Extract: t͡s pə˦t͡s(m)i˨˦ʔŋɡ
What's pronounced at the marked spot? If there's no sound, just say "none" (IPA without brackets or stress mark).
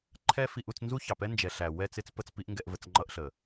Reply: p